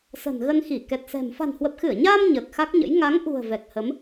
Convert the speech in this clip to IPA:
sə̤˨˩nɣə˧nxi˧˩ kɛ˨˩t̚sɛ̤˨˩m fa̤˨˩nhwə˨˩p̚xɨ˧˩ə̯ɲaː˧m ɲəː˨˩k̚xa˦˥k̚ɲə̰˧˥j ŋa˨˦ŋʔṳ˨˩ə̯ vɛ˨˩k̚hə˨˦m

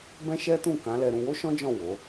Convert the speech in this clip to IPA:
bɛ̃˦ʃɛ˦tũ˦˨ kã˨˦lɛ˧ɾũ˧ wo˦ʃɔ̃˦d͡ʒɔ̃˦˨ wo˨˦

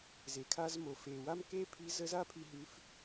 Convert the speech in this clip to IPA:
ze˩kʰa˧zmo˩ fe˩ wa˥mke˥pʰi˧˥ zə˧˥za˥pʰi˧ ɦʉ˧˥f

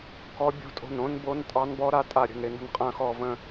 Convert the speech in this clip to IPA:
kɔ˦˥ bʲo̤˦˥tʼo̤˦˨nõ˦˥nbo˦˥n tʼɑ˦˥nbɔ˦˥ɾa˦˥ tʼa˦˨ɾʲə̤˦˨nɾɪ˦˨nə̤˦˨n qʼɐ̃˦˨xɔ˦˨və̃˦˨

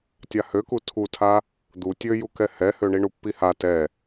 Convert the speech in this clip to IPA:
tʲahøku tʰutʰa | d̪u tʲøjukɛ hɛhøɳiɳu pːiha tɛ

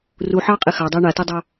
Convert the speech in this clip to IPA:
ruħɑːqʼe xɑdˤəː ɳatɛdˤɑ

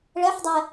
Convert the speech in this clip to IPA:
ɭɛħdˤɛ

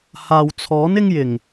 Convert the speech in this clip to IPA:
haː˨wt͡sʰɔː˨˥n ɪ˥ŋjɪ˨˩ŋ

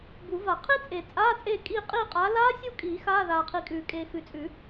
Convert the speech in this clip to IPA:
bu˨˩˦va˨˩˦ qʰi˦˥t͡sʼe˨˩˦ t͡sʼaː˧˥˧t͡sʼeː˦˨kʼiː˦˨ qʼiː˦˨qʼaː˨˦ laː˦˥sʲu˦˨kʼiː˨˩˦ xaː˧˥˧ðaː˨qʰi˨kʼʉː˨˩˦ kʼeː˨xʉ˨t͡sʼʉ˨˩˦

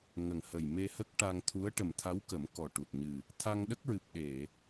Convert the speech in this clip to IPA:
ŋə˨˩ŋhə˨˩j me˧hə˦˥k̚ ʈa˧ŋt̪ʰu˧˥ə̯ ʈə˨˩mt̪ʰa˧˥wkə˨˩˦m kɔ˨˩ ʈu˨˩t̚ɲɨ˨˩ | t̪ʰa˧ŋɗə˦˥k̚ɹɨ˨˩p̚ ɗe˨˩˨

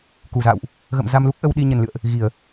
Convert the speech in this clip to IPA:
ku˧˩za̰ː˧˨wʔ | ɣə̰˧˨m za˧mlu˦˥k̚ ʔə˧wɗi˧ ɲə˨˩nlɨ̰˧˨ə̯ʔ | ɣi˧˩˨ə̯

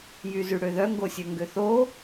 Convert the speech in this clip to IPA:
jyzyɽøðœ ŋɡosʲøŋɡøθo

